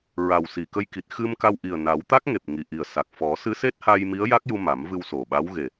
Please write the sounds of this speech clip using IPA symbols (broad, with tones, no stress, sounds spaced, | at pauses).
ɹ a˨˩ w s i˨˩ k ə˧ j k i˨˩ t̚ x ɨ˧ m k a˧ w ʔ i˨˩ ə̯ n a˨˩˦ w t̪ a˦˥ k̚ ŋ e˨˩ p̚ ŋ i˨˩ ʔ i˨˩ ə̯ s a˨˩ k̚ f ɔ˨˩˦ s ɨ˧˥ s e˦˥ t̚ h a˧ j m i˧˥ ə̯ j a˦˥ k̚ j u˧ m a˨˩˦ m v ɨ˧ w s o˨˩ ɓ a˧˥ w ɣ e˨˩